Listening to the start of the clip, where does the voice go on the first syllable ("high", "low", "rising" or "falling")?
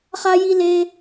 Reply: high